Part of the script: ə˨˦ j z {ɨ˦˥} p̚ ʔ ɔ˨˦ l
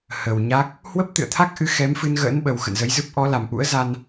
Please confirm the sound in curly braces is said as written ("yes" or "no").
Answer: yes